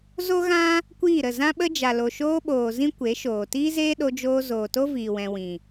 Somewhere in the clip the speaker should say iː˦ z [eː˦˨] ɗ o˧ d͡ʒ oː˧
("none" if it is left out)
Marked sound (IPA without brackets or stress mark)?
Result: eː˦